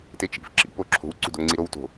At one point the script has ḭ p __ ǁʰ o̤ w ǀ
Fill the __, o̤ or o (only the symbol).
o